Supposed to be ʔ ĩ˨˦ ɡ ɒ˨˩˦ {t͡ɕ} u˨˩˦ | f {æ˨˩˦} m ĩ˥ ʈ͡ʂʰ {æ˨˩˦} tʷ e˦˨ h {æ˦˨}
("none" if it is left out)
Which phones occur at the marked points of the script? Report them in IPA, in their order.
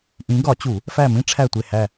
t͡ɕ, æ˦˨, æ˦˨, æ˦˨

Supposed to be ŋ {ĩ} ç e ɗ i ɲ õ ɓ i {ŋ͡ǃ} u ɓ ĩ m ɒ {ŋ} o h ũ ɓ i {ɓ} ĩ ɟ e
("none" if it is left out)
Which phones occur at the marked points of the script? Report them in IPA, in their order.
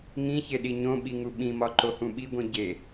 ĩ, ŋ, ǃ, ɡʷ

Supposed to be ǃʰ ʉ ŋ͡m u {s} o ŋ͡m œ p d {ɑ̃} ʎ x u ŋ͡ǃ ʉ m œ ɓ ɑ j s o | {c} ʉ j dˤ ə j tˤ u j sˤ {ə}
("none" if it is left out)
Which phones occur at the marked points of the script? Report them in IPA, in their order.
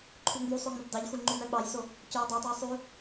sˤ, ɑ, c, ʉ

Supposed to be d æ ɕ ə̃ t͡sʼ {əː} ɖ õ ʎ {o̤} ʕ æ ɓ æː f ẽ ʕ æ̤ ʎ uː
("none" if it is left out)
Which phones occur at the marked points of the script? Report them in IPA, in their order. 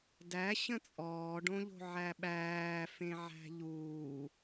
ɔː, o̤

